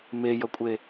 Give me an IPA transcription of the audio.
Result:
m e j ʌ kʷʼ e

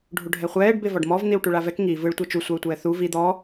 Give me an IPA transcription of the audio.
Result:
ɖʱ u ɖʱ ɛ χʷ ɛː ɖ b e v ɔ ɖ m ɔ v n̪ i w ʈ u ɭ a v ɛ k ŋ i v ɯ ɭ tʷ ɤ t͡ʃ u sʷ a u̯ tʷ ɛː θ u v i d̪ ɔ

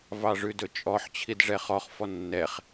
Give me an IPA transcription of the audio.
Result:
v ɑ ʐ ʉ d ɵ t͡ʃʼ ɔ ħ t͡ɕʰ i d ʐ ɛ χ ɔ χ f ɔ nː ɛ χ

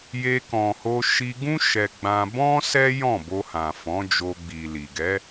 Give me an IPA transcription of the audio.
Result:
j e˧ k ɔ̃˨ h o˧ ʃ i˧ ɡ ũ˦ ʃ ɛ˧ ɡ͡b ã˧ b ɔ̃˦ s ɛ˦ j ɔ̃˦˨ b o˧ h ã˨ f ɔ̃˨˦ d͡ʒ o˧ ɡ͡b i˨ l i˨ ɡ ɛ˨˦

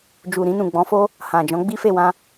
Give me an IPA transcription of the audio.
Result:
d͡ʒ u˨ ɾ ĩ˧ n ũ˨ ɡ͡b ɔ̃˨˦ f o˦ | h ã˨ d͡ʒ ɔ̃˨˦ ɡ͡b i˦ f e˦˨ w ã˧

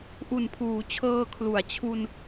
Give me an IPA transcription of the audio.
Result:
ʔ u˨˩ n pʰ uː˩˦ t͡ɕʰ ɤː˧ kʰ l u˩˦ a̯ t͡ɕʰ u˧ n

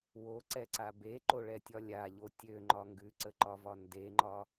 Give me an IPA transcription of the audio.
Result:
w o ǀ ɛ ǀ a b e ǃ o ɭ ɛ tʲ ɒ lʲ a ʎ o tʲ ø ŋ͡ǃ ɒ ŋ ɡ ʉ ǀ ə ǃ ɒ v ɒ n d e ŋ͡ǃ ɒ

